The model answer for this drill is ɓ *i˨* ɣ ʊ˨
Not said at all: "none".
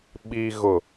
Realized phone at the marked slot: i˨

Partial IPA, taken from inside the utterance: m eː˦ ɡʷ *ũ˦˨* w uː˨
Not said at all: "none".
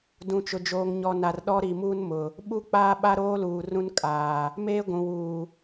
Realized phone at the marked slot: ũ˨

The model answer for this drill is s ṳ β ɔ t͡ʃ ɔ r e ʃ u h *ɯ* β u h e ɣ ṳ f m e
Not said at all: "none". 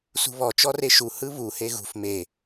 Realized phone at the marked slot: ɯ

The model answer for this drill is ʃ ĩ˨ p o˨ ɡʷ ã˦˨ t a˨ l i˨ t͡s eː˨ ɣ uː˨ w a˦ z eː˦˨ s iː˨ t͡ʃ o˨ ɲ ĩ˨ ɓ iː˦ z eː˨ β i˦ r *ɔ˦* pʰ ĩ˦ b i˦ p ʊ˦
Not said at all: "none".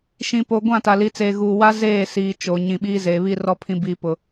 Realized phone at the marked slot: ɔ˦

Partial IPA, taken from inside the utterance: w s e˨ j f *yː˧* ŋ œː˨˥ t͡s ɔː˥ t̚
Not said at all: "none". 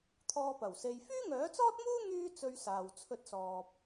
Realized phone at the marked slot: yː˥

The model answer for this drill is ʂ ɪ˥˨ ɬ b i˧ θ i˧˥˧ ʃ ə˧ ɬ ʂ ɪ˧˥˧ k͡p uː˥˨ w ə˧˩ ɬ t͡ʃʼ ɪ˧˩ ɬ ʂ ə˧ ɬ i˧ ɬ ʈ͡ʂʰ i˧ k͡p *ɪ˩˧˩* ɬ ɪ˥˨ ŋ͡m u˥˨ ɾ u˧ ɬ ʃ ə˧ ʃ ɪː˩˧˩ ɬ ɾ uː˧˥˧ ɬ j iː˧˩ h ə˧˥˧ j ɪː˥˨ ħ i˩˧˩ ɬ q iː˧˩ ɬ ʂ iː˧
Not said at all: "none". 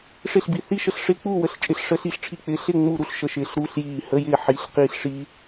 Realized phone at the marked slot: ɪ˩˧˩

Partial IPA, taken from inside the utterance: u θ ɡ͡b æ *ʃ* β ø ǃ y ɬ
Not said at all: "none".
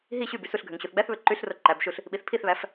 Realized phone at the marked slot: θ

